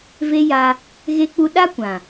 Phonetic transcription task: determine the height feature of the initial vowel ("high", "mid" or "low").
mid